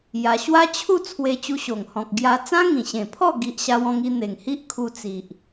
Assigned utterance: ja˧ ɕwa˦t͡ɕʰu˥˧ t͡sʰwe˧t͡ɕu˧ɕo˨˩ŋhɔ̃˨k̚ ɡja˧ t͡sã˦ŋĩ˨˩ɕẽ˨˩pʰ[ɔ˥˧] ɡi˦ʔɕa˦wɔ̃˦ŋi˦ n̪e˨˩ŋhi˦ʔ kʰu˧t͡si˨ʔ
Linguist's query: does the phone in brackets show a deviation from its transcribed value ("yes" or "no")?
no